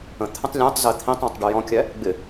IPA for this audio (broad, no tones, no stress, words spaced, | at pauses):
ə̃ t̪ʰə̃tˤlʲæ̃tˤzɛ t̪ʰĩtˤɔ̃tˤ ɖujɔ̃kʲæ | ɡ͡bɪ